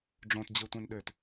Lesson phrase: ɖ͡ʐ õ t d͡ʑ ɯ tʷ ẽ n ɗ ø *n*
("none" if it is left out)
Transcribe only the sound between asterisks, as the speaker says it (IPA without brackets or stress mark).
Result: t